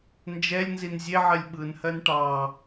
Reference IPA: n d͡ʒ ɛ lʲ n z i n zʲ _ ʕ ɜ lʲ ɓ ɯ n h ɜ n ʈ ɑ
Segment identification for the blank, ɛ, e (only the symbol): e